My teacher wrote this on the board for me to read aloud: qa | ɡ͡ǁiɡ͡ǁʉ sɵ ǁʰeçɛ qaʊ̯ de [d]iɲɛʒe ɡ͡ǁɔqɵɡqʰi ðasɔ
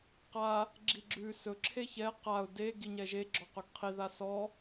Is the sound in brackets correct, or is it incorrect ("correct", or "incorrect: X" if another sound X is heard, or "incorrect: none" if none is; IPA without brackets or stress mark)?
incorrect: ɡ